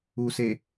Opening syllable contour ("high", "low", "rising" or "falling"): low